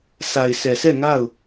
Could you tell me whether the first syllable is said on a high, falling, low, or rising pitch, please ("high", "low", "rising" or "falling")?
low